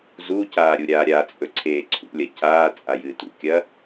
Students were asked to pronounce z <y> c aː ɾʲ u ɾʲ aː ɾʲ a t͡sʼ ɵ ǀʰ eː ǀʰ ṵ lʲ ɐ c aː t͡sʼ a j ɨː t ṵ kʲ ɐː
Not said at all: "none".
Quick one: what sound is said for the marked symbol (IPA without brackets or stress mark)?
u